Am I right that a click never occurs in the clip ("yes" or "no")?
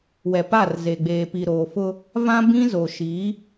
yes